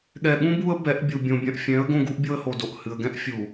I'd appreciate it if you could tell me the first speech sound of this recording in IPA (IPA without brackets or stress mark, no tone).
ɠ